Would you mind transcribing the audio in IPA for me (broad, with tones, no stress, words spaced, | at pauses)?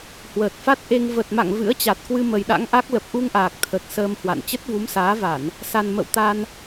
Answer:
hwəː˨˩t̚fa˦˥t̚ʔe˧ŋ və˨˩t̚ma̰˧˨ŋ vɨ̰˧˥ə̯t͡ɕa˨˩t̚kwɨ˧ mə˨˩jɗa̰˧˥ŋʔa˦˥k̚ lə˨˩p̚ʔu˧ŋʔaː˨˩k̚ t̪ʰə˨˩t̚ səː˧mhwa̰˧˨n t͡ɕə˦˥t̚vu˨˦msaː˨˦va˧˩˨n | sa˨˩n mə̰˧˨wt̪a˧n